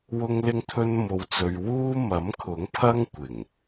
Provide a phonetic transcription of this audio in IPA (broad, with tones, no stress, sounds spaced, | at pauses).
w ʊ˥ ŋ l ɪ˥ ŋ t̪ʰ ɵ˥ n m o˧ w t͡s ɵ˧ ɥ w uː˥ m ɐ˨˥ m kʰ ʊ˨˥ ŋ pʰ ɐ˥ ŋ kʷ ɪ˨˩ ŋ